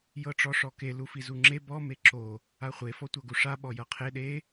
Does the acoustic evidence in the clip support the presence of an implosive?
yes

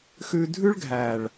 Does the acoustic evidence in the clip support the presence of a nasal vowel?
no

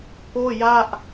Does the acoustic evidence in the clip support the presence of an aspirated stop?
no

